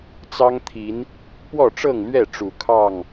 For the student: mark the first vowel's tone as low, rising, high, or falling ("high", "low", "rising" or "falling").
high